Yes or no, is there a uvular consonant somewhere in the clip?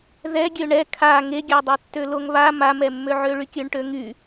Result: no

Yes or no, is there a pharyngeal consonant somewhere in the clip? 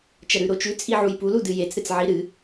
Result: yes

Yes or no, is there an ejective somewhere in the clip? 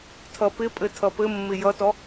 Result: yes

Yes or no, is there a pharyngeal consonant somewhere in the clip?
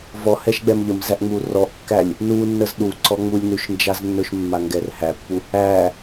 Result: no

